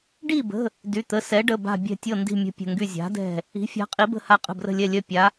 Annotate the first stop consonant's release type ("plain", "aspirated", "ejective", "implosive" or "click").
plain